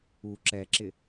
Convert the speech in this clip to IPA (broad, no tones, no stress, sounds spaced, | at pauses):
u ǁ ɛ ǁ ɪ